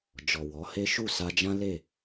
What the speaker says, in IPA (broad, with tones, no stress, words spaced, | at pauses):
d͡ʒɔ˨wɔ˨˦he˦ ʃu˦˨sa˧d͡ʒã˦le˦˨